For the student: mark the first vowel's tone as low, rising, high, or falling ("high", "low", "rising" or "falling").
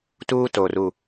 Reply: high